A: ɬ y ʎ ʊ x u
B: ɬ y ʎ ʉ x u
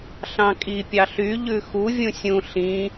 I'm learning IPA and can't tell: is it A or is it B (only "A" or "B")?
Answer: B